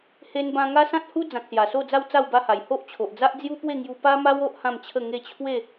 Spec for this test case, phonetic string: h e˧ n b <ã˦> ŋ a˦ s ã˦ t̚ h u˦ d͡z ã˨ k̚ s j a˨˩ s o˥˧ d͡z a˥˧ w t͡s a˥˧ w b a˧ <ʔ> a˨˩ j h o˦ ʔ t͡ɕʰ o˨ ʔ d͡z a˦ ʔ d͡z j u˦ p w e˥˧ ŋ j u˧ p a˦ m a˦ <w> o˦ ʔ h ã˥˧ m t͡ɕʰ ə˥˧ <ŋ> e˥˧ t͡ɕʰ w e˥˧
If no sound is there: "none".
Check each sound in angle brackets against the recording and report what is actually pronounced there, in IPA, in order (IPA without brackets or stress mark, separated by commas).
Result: ã˧, h, w, ŋ